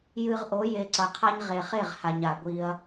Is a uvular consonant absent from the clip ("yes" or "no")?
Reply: no